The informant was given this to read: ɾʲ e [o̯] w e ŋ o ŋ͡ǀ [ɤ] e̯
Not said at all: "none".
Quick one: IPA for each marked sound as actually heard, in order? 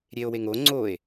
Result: o̯, o

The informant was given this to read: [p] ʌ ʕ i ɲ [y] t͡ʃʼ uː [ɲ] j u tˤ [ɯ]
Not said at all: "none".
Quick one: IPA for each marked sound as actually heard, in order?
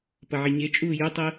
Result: p, e, none, ɯ

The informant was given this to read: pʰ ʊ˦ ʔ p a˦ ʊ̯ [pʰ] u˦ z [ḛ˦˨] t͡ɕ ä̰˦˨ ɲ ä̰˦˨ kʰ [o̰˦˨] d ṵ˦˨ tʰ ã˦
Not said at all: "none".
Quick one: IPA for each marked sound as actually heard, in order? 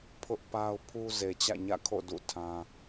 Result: pʰ, e˨, o̰˦˨

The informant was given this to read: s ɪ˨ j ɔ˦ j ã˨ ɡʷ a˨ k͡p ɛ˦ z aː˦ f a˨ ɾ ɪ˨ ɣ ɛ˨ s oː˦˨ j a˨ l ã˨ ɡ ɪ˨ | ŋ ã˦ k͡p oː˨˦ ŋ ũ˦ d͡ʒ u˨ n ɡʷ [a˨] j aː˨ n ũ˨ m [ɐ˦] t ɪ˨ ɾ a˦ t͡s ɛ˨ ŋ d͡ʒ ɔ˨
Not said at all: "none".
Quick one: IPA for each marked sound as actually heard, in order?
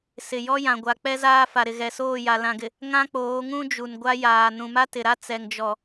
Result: a˦, a˦

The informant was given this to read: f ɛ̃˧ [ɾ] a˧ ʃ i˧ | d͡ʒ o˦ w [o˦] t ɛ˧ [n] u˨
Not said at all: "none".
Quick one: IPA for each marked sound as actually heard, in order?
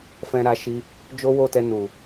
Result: ɾ, o˦˨, n

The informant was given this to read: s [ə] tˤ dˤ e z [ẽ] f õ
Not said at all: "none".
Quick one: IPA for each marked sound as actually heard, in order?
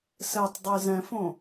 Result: ɛ, ɛ̃

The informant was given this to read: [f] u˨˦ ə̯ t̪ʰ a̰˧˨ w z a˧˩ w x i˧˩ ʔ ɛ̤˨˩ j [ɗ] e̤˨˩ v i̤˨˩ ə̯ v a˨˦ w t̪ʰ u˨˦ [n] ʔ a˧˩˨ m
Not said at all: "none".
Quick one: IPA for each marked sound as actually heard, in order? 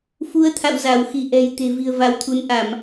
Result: f, t̪, n

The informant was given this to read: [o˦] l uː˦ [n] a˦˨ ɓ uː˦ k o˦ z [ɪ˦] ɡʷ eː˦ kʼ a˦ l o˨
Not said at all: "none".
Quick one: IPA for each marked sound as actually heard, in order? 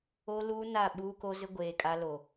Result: o˦, n, ɪ˦

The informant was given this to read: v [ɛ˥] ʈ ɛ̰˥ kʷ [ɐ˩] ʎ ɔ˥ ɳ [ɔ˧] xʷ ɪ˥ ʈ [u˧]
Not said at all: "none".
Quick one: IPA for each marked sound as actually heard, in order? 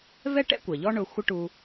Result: ɛ˥, ɐ˩, ʊ˧, u˧

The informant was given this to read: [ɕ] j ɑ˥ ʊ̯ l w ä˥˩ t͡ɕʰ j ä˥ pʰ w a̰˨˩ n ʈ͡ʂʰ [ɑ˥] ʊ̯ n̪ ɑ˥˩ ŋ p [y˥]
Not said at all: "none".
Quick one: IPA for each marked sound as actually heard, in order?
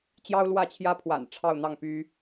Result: t͡ɕ, ɑ˥˧, y˥

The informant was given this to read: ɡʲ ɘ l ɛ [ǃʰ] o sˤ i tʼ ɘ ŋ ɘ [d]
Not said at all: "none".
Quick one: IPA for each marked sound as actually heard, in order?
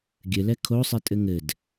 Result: kʰ, d

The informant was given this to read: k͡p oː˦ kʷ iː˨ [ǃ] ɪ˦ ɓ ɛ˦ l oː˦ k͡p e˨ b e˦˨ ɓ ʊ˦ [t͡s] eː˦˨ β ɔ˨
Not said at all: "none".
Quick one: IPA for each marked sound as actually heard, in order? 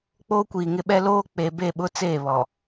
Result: ŋ, t͡s

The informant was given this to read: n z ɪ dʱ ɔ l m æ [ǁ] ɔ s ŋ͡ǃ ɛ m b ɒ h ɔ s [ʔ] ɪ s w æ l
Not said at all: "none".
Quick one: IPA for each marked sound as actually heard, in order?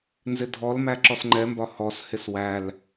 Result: ǁ, h

